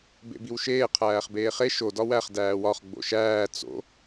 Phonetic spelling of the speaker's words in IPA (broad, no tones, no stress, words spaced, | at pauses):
bḛbiwʃeː qʰæːχbeːχe ʃo dɒwæχ dæːwɒχ ɡ͡bo̰ʃæː t͡so̰